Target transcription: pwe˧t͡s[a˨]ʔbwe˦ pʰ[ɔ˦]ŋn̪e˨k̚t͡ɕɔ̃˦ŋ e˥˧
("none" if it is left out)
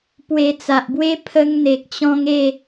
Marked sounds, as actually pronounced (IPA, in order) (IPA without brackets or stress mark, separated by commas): a˨, ə˦